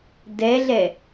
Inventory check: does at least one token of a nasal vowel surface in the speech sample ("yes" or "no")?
no